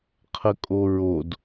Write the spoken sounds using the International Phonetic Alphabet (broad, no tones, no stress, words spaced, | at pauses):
qʰəkʼoɹod